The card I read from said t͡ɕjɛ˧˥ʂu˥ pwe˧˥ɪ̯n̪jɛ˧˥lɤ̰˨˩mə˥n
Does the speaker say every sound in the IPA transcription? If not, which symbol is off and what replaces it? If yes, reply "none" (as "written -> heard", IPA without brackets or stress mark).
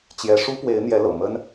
none